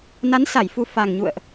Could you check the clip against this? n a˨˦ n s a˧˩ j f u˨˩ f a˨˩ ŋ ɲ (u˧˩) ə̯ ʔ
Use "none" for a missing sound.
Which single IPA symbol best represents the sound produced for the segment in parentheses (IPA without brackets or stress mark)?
ṵ˧˨